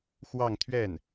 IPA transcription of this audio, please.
x w ɑ˥˧ ŋ t̪ʰ ɥ ɛ˥˩ n

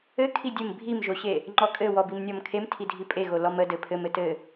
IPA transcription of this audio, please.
ɘ kʰ i dʲ ɘ m bʱ i m ʒ o ɕ e | ŋ͡ǃ ɔ kʼ ɘ w ɔ b i m nʲ ɔ m kʰ e m tʰ i dʱ i pʼ e ɣ o l ɔ m ə d ɘ pʰ ɘ m ɘ t ɘ

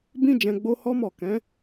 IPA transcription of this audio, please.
b ĩ˦ d͡ʒ ɛ̃˧ ɡ͡b o˦ h ɔ˦ m ɔ˦˨ k ɛ̃˨˦

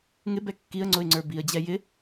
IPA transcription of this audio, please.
ŋ ɪ b ɛ kː i ə̯ ŋ͡ǀ ʊ ɪ̯ ŋ͡ǀ ə˞ b i ə̯ d͡ʑ ɛ j ɪ

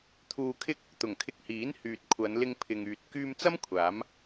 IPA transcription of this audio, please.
t̪ʰ uː˧ kʰ ɪ˥ k̚ | t̪ ʊ˨˩ ŋ kʰ ɪ˧ k̚ h iː˨˥ n h yː˨ t̚ kʷʰ ɐ˨˧ n l ɪ˧ ŋ pʰ ɪ˨ ŋ yː˨ t̚ k yː˧ m t͡s ɐ˥ m kʷʰ aː˨˥ m

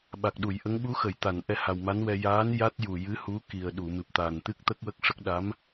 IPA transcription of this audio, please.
ɓ a˨˩ k̚ ɗ u˨˩˨ j ʔ ə˧˥ ŋ ɓ u˧˥ x ə˨˩˨ j t̪ a˨˩˨ n ʔ ɛ˧ h a˨˩ w m a˧˥ n w ɛ˧ j aː˧˥ n j a˦˥ t̚ j u˨˩ j ɨ˧˥ h u˧˥ k i˨˩ ə̯ ɗ u˨˩˨ m ɨ˨˩ p̚ t̪ a˨˩ n t̪ ɨ˦˥ k̚ t̪ ə˦˥ k̚ w ə˦˥ k̚ ʂ ə˦˥ k̚ ɗ a˧˥ m

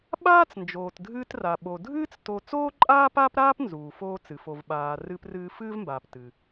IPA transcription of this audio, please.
ɓ aː˥ t͡s n d͡ʒ oː˩ t dʱ ɨː˧ t r a˩ ɓ o˩ dʱ ɨː˥ t͡s t o˧ t͡s oː˥ ǃʼ aː˥ p aː˥ p ɾ aː˥ p n z uː˩ f oː˧ t͡s ɨ˩ f o˩ v ɓ aː˩ r ɨː˧ p r ɨː˧ f ɨː˥ v m b aː˩ p t ɨ˩

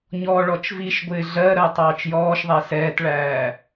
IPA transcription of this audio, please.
ɲ ɔː ɭ ɔ t͡ʃ v i ʃ ɡʷ ɪː ɮ ɜ ɾ ɜ tˤ ɑː t͡ʃ j ɔː ʃ ðˤ æ s ɛː t ɭ æː

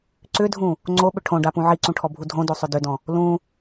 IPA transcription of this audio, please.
ǀ ʏ dʱ ũ | ŋ͡ǀ o ɓ ʏ ʈʰ õ ɖ a p ũ ʕ i ǀ ũ ʈʰ ɔ bʱ u dʱ õ d o sˤ ʏ d ʏ d ɔ̃ | l ũ

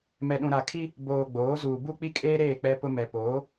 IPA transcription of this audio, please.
m ɛ˨ ɗ ũ˨ ɾ a˨ kʰ i˦ | b oː˨ ɡ͡b oː˨˦ z uː˨ b u˦ k͡p i˦ kʼ eː˦ ɾ eː˦˨ k͡p ɛ˦ p ʊ˦ m ɛ˨ p oː˨˦

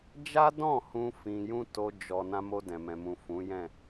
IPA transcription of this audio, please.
d͡ʒ a˦ d ɔ̃˦˨ h ũ˧ f ĩ˧ j ũ˦ t o˦ d͡ʒ ɔ˧ n ã˧ m o˧ d ɛ̃˨ m ɛ̃˨ m ũ˨ f ũ˨˦ j ɛ̃˦˨

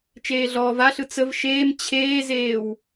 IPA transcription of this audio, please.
t͡ʃ eː ɮ ɔː v a ɬ ɯ t͡s ə v ʃ eː m t͡ɕʰ eː z eː w

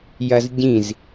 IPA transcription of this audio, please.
j ɐ z ɟ ĩ z

